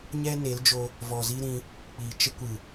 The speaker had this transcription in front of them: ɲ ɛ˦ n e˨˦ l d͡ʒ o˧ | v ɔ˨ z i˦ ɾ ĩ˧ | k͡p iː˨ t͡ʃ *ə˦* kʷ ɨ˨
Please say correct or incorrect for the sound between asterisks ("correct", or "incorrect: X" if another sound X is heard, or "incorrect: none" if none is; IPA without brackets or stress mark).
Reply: correct